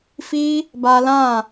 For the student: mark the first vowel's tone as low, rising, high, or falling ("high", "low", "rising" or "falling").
high